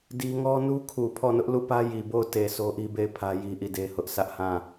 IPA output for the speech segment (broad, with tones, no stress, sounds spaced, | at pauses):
d i˦ ŋ ɔ˦ n u˦ kʰ u˨ pʰ ɔ˦˨ n ʊ˦ ʔ l u˦˨ p ä˦ j i˨ b o˦˨ ʊ̯ t e˨ s o˦ ʔ i˦ b e˦˨ ɪ̯ pʰ ä˦ j i˦ ʔ i˦˨ d e˦ h ʊ˦ ʔ s ä˦ ʔ h ã˦˨